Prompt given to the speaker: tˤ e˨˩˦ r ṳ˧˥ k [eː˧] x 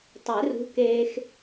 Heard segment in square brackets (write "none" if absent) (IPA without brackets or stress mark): eː˧